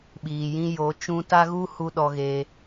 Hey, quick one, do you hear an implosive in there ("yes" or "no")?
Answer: yes